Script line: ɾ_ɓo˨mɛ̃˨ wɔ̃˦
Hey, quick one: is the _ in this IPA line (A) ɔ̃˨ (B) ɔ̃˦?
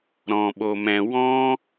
A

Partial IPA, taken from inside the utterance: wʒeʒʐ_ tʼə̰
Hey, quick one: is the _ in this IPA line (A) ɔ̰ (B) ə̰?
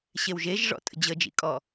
A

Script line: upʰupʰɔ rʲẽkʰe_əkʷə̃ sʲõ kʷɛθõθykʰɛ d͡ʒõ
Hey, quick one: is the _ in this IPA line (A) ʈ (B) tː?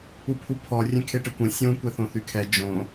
A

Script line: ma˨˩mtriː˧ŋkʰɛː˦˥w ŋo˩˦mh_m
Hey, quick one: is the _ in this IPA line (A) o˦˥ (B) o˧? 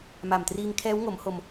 B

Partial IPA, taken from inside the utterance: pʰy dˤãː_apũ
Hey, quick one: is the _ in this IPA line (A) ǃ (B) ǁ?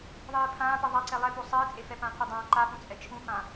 A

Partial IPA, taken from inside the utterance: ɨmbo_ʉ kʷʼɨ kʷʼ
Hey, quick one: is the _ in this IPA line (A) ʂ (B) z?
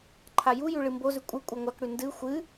B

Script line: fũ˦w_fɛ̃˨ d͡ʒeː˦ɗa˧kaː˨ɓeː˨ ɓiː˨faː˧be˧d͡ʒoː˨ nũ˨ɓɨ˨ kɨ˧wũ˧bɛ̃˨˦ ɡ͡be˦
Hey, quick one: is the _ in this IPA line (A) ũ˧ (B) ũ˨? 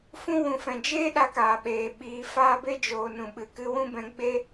B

